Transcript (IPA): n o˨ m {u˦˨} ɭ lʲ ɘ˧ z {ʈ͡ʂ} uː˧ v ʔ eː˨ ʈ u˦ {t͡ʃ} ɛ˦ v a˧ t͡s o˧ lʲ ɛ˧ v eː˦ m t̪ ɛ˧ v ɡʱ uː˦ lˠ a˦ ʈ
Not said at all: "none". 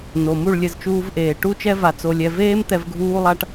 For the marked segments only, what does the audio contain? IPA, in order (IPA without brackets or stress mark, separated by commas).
u˦˨, t͡ʃ, t͡ʃ